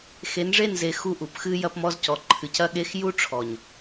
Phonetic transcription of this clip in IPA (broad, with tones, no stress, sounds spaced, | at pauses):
x e˨˦ n ʐ e˦˨ n z e˧ x u˦ ʔ u˨ p x ɨ˧ j ɐ˧ p m ɔ˧ z c ɔ˨ ǃʰ ɨ˨ c ɐ˧ ɠ e˧ x j u˦ ʈ͡ʂʰ ɔ˨ ɲ